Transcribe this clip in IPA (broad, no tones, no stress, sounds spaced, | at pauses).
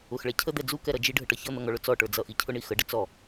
ʊ x ɭ ɛ cʰ ə d̪ ɛ d͡z u k ɛ ɾ ʌ d͡ʒ i ɖʱ ə ʈ ʌ ç ʌ n̪ ʌ ŋ ɔ ɭ ʊ t͡s ɔ ʈ ə˞ d͡z ʌ ʔ i cʰ ʊ ɳ i x ə ɖ ə t͡s ɔ